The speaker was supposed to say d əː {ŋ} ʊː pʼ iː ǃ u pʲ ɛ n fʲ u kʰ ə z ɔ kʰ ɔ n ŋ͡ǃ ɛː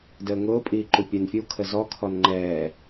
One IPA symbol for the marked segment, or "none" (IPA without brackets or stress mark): ŋ